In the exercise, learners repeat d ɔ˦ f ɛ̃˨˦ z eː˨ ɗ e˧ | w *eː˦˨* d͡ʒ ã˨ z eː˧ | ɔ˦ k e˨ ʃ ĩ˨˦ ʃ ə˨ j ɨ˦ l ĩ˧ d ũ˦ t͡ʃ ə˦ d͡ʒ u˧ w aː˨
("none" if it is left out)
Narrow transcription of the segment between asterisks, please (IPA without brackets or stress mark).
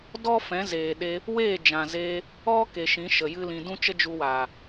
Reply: eː˦˨